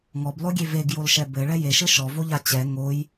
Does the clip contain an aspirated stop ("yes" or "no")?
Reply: no